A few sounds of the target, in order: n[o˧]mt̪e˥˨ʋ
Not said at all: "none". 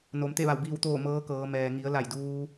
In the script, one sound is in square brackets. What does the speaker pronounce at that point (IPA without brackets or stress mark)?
o˩˧